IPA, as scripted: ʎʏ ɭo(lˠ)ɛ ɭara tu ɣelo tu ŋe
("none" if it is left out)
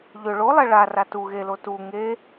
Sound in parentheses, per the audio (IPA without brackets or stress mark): lˠ